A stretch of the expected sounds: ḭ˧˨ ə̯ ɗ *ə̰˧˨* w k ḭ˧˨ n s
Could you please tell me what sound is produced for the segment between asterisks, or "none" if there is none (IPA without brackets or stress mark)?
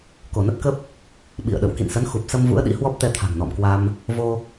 ə̰˧˨